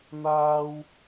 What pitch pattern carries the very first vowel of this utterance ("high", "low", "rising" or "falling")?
low